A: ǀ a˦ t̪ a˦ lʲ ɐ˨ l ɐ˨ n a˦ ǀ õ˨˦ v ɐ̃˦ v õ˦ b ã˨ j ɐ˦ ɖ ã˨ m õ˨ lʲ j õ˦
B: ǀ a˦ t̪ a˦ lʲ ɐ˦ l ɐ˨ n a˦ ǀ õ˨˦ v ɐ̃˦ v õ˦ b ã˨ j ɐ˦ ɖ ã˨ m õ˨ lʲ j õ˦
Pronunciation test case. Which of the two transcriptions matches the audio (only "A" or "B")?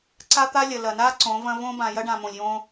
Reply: A